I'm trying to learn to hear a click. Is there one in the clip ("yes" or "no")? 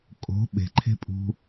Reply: yes